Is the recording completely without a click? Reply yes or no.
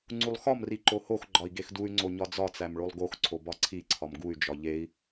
no